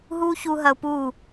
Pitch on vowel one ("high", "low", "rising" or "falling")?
high